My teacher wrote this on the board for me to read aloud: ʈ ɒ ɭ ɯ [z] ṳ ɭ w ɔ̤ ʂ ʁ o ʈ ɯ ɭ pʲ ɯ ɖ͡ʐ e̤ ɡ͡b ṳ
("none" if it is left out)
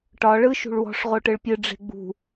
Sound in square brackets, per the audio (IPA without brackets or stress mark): ʃ